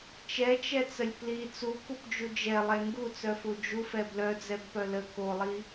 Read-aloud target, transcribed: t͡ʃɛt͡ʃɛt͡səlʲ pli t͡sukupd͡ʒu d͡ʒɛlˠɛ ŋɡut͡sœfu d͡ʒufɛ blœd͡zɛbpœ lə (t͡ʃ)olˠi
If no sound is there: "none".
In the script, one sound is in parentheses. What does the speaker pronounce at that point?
k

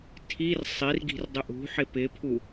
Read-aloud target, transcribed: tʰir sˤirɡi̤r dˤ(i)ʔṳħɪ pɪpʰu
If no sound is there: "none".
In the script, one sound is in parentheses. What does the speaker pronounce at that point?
ɪ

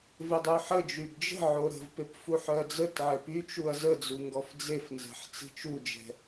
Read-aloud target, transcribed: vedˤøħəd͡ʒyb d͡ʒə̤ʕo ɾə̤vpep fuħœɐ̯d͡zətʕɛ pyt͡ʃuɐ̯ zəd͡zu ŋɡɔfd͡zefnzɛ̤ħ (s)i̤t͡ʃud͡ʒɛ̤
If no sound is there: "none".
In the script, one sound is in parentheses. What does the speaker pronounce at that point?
t͡s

